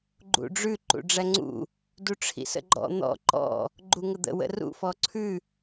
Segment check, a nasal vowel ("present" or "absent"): absent